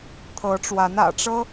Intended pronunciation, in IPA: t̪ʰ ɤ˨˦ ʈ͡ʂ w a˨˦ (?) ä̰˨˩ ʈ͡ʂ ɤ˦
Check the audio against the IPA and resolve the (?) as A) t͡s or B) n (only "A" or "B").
B